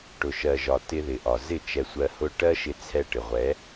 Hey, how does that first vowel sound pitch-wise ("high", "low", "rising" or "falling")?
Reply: low